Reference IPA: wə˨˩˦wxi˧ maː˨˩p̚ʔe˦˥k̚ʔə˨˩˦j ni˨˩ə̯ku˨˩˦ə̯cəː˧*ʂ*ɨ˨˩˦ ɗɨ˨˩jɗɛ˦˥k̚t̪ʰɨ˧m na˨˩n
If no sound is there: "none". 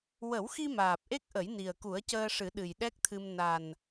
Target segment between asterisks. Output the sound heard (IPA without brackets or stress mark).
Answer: ʂ